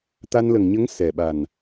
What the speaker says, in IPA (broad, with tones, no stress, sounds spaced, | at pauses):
t̪ a˧ n l ə˨˩ ŋ ɲ ə˧˥ ŋ s ɛ˨˩ ɓ a˨˩ n